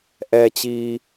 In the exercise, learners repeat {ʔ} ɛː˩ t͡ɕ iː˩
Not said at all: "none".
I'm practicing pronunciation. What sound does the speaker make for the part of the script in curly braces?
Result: ʔ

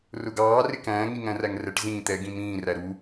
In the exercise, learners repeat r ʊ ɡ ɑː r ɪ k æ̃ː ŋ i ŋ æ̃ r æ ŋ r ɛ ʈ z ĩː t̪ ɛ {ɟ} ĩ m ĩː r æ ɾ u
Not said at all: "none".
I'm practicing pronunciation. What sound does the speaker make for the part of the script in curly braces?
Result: ɡ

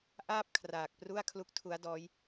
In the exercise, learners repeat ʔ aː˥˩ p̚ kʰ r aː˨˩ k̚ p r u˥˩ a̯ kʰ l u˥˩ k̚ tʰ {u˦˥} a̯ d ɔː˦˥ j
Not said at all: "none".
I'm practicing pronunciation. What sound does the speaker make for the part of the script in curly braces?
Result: u˦˥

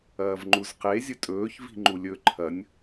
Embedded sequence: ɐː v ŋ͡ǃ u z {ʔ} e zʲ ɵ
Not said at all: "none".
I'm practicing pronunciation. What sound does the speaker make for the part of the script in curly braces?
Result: q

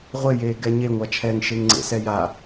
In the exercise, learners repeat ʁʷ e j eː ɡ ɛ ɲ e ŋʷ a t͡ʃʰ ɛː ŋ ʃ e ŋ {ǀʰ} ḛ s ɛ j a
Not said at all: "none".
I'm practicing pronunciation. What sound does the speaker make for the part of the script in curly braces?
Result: ŋ͡ǀ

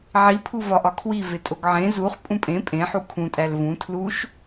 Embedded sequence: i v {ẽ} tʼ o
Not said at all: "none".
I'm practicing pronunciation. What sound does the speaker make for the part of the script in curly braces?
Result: e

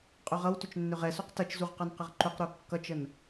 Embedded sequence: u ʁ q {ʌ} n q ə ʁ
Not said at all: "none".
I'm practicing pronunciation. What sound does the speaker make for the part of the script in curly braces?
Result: ʌ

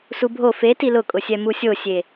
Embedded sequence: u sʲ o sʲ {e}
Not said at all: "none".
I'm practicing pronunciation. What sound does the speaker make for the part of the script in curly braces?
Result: e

